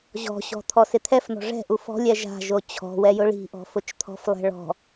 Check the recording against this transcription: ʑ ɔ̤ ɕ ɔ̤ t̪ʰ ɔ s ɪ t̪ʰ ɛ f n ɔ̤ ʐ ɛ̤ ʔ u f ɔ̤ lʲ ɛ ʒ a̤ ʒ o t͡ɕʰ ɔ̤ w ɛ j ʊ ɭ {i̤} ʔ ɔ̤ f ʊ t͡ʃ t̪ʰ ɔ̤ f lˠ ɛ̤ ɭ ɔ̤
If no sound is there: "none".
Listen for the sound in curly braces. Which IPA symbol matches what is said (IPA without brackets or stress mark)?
i̤